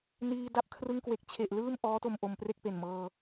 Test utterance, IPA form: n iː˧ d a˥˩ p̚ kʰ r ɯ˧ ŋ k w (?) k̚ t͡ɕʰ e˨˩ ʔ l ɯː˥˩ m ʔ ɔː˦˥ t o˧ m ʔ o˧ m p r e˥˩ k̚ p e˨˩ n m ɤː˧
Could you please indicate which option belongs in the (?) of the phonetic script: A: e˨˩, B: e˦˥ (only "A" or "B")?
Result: A